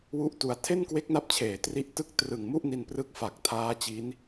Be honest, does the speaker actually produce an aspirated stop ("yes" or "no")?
yes